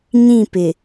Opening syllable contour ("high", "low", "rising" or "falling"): falling